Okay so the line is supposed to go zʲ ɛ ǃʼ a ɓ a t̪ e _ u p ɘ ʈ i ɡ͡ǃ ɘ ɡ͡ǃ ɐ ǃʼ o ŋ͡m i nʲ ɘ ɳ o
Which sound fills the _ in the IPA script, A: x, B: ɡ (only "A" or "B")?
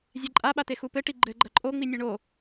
A